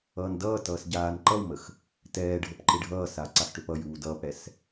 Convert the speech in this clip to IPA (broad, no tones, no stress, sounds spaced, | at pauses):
ʌː n d ʌː t ʌː s ɟ aː n ǃ ʌ w m ə x | t ɛː ɖʱ ə p ǃ ɪ ɖʱ ʌː s a ǀ a x ʈ ø p ʌ j uː d ʌː p ɽ ɛ s